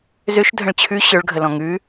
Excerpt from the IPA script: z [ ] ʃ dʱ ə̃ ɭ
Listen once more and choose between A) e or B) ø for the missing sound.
B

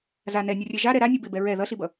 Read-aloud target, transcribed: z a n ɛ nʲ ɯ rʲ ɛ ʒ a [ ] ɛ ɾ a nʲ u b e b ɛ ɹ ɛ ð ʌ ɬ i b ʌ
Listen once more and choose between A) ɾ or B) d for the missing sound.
A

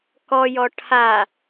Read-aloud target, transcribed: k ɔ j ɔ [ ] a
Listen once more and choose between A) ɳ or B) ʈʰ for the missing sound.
B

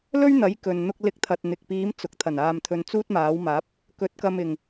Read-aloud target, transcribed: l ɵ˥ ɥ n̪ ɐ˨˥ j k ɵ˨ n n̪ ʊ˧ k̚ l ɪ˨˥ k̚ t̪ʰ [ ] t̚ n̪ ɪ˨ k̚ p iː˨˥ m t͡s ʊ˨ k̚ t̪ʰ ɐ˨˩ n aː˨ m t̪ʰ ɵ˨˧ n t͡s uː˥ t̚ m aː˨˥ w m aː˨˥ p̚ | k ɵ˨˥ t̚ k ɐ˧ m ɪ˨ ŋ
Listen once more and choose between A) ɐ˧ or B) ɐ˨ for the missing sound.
B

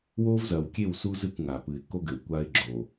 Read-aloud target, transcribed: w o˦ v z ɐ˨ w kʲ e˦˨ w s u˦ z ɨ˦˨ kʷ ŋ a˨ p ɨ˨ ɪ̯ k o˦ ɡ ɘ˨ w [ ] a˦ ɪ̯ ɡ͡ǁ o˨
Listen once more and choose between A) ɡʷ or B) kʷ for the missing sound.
B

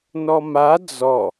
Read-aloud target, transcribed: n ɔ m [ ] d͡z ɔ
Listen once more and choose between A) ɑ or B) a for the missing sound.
B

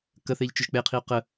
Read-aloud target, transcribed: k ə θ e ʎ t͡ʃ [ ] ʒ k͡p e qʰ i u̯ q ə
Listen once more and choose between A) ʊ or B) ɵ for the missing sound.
A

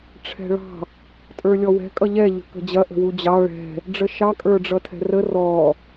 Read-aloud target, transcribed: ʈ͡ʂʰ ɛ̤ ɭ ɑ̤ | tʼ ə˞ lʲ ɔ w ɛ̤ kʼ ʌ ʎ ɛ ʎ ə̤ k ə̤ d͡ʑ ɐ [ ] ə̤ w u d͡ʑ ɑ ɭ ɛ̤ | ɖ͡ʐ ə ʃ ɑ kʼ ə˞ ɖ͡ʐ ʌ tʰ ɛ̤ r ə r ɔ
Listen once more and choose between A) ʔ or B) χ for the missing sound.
A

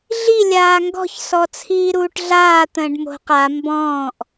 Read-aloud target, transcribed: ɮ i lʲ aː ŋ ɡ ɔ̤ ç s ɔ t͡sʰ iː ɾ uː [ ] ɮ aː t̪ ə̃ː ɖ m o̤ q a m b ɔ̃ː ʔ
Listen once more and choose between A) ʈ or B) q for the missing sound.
A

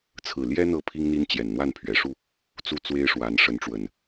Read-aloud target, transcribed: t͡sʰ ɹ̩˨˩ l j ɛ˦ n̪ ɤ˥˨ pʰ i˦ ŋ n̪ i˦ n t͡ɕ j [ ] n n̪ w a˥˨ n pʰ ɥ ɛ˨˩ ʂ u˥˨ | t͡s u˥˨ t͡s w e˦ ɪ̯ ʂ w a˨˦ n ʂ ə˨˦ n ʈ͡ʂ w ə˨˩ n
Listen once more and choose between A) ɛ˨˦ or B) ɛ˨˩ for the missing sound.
B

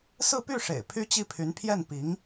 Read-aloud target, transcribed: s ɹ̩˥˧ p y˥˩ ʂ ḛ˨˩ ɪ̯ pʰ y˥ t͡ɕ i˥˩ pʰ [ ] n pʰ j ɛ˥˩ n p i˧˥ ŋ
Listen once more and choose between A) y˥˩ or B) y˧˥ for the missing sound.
B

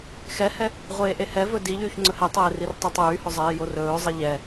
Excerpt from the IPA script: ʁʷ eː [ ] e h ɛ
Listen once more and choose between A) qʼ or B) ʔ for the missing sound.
B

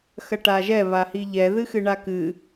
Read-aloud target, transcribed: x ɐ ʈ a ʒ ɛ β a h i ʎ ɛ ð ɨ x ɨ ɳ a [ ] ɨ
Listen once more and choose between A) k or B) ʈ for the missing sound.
A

